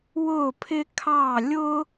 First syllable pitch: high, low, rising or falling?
falling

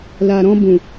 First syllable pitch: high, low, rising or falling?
low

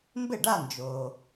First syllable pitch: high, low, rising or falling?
falling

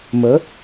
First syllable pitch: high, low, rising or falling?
rising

